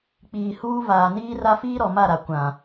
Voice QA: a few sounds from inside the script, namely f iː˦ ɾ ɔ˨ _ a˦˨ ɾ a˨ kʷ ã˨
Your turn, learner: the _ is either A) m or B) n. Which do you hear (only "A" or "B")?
A